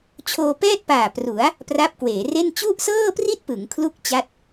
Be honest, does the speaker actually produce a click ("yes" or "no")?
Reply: no